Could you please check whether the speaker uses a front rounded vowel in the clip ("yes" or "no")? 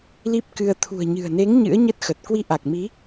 no